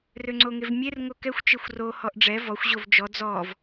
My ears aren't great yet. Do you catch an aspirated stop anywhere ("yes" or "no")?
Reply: no